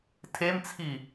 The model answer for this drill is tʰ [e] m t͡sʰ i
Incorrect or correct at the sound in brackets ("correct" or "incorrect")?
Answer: correct